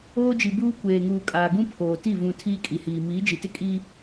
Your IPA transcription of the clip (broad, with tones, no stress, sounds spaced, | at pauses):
oː˦ d͡ʒ i˨ b uː˦ kʷ eː˨ ŋ uː˨ kʼ aː˨ ɡ ũ˦ pʰ oː˨ t i˦˨ v ũ˨ tʰ iː˦ kʼ i˨ h iː˨ m iː˨˦ d͡ʒ i˨ t ɪ˦ kʼ i˦